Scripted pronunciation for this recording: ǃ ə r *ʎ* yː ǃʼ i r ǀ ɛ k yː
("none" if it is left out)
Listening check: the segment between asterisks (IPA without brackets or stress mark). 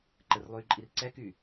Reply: lˠ